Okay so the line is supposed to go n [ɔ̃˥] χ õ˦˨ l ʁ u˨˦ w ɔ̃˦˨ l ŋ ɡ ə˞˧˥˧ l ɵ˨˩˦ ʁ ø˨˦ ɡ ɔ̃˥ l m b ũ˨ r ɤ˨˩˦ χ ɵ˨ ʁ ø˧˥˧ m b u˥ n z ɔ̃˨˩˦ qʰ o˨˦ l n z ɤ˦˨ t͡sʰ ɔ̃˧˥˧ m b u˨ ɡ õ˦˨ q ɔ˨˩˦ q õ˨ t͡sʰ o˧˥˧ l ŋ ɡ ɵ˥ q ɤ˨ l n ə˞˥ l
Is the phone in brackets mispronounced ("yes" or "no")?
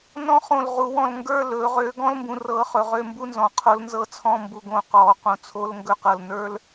no